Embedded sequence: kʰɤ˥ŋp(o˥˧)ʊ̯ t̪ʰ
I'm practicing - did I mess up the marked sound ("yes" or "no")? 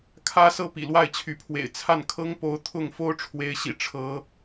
yes